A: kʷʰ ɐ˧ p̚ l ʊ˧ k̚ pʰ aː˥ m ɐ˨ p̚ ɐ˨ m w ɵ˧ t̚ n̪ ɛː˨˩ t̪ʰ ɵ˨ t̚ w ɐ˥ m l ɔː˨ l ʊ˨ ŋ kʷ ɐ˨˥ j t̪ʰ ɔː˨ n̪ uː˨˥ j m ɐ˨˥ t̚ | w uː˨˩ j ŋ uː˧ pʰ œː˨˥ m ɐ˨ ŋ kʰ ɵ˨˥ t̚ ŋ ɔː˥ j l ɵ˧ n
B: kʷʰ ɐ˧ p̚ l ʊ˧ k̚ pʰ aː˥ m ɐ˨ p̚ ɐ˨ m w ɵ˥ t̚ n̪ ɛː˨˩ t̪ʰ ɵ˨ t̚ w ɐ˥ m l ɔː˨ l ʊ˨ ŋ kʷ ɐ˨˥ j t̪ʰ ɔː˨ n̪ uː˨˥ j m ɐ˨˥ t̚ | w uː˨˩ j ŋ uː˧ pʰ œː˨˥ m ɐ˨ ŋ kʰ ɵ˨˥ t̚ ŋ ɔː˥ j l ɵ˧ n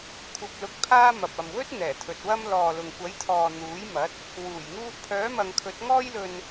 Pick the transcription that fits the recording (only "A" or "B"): B